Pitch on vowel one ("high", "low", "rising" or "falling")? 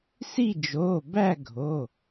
falling